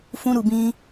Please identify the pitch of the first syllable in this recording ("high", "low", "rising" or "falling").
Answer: high